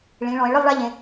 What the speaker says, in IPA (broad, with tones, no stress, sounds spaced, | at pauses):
ɭ ĩ˩˧ ɭ ɔ̃˩˧ e̯ ɭ ɯ˥˧ lˠ ɭ a˥ ʎ ẽ˩˧